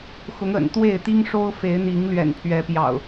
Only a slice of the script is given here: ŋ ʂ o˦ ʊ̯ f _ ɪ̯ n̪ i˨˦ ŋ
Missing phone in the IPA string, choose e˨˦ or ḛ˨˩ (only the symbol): e˨˦